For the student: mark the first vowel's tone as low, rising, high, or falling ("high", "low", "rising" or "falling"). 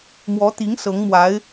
rising